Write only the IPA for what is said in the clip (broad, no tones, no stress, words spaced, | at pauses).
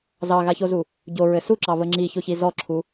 zɑɣaçozu | ɟoɹɘ suǁɑβə ŋ͡ǁiçoçi zɔǁʰu